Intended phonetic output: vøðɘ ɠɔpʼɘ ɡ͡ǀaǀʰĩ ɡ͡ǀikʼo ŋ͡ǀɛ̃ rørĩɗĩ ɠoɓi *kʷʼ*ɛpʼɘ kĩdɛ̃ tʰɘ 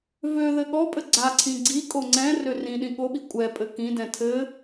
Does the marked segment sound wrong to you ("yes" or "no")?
no